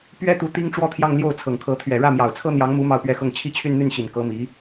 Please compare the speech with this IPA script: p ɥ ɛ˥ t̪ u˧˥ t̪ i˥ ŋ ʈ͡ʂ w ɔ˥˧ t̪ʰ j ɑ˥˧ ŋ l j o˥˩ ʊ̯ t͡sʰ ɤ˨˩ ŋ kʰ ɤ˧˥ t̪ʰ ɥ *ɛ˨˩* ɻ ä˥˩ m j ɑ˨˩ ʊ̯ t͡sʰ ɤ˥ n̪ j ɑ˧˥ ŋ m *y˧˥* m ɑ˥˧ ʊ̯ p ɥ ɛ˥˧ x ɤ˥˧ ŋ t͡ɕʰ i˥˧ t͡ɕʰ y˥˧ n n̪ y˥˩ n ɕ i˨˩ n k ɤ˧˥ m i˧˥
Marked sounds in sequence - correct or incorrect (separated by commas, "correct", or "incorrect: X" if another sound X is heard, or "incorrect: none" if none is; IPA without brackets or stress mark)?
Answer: correct, incorrect: u˧˥